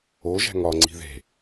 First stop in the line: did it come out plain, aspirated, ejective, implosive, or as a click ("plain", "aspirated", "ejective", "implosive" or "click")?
click